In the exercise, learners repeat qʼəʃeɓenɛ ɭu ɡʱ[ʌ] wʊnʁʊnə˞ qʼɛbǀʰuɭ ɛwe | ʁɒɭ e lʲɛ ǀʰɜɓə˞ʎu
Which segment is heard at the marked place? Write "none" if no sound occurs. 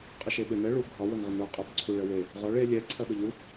ɒ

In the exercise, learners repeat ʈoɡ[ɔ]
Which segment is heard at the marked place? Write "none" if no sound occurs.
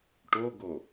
o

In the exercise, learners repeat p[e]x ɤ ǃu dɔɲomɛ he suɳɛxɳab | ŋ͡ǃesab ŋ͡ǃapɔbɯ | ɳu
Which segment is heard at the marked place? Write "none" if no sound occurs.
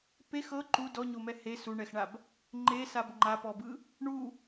e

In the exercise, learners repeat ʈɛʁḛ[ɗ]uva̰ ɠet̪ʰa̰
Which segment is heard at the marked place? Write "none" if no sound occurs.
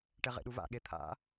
ɗ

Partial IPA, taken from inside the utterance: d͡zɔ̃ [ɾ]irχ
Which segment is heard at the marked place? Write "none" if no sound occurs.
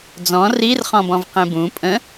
r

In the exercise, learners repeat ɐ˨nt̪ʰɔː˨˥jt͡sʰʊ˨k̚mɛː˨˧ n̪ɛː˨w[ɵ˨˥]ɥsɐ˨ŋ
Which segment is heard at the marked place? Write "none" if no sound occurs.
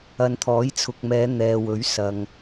ɵ˨˥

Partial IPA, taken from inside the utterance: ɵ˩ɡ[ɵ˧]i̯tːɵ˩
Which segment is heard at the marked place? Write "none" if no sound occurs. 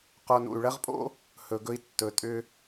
ɵ˧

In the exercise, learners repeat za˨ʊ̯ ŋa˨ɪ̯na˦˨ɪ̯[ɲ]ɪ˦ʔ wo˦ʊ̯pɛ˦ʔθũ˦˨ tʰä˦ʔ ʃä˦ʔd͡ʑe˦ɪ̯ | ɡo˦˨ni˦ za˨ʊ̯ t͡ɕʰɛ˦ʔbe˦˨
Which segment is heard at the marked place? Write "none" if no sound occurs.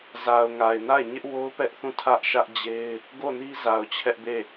ɲ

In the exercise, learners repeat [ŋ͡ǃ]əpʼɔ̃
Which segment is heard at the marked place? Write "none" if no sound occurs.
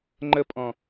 ŋ͡ǃ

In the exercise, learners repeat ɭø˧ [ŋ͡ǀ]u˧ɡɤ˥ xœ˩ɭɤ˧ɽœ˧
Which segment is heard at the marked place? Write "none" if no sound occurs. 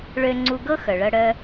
ŋ͡ǀ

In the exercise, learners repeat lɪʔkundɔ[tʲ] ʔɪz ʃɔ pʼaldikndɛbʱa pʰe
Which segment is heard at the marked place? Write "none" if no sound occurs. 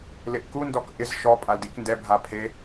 k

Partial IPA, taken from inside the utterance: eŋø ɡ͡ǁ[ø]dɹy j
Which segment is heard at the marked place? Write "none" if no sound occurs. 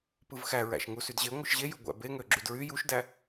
y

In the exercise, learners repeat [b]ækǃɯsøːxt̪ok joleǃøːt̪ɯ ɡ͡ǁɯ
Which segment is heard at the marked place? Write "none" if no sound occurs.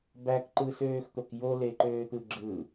b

